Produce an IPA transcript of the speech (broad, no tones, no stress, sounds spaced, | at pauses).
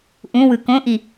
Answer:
ʔ ũ w ɯ k õ ʔ i